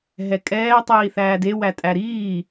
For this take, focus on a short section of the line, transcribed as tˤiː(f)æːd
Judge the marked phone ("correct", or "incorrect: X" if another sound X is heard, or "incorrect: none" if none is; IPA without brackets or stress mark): incorrect: θ